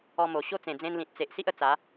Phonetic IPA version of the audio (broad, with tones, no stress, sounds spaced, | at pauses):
ɔ˧ m o˨˩ ɕ o˦ t͡s ẽ˨˩ d͡z ẽ˧ n l ĩ˨ t̚ t͡s e˨ ʔ s i˦ ʔ ə˧ t͡s a˨˦